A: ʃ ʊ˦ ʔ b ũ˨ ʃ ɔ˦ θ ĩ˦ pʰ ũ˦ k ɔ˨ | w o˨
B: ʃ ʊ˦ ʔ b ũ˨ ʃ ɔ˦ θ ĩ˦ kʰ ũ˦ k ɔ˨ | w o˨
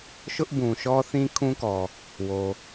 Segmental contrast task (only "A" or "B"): B